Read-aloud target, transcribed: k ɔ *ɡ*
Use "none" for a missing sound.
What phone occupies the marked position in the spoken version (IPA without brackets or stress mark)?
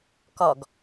ɡ